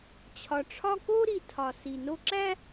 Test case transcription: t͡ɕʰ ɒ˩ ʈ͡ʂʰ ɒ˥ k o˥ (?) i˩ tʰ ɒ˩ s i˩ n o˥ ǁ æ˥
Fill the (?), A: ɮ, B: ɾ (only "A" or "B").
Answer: B